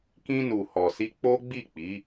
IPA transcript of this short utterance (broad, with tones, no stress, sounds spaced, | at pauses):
k ĩ˧ n u˨ h ɔ˨ s i˧ k͡p o˦ ɡ͡b i˦˨ k͡p i˨˦